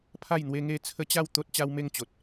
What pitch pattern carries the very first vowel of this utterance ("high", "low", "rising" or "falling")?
falling